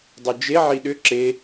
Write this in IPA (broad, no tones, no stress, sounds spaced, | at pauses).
dˤ ʉ d͡ʒ e ʕ i ɗ ʏ ǁ e